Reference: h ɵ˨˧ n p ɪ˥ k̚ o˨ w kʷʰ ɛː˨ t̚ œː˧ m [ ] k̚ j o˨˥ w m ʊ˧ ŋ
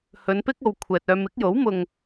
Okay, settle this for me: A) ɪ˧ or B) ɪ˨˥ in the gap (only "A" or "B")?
B